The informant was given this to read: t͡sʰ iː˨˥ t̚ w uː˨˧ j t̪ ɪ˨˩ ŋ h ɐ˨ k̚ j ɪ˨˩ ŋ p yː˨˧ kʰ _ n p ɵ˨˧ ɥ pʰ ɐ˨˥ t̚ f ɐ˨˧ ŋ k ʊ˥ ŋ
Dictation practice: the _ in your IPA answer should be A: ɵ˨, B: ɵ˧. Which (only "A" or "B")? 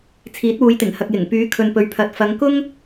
A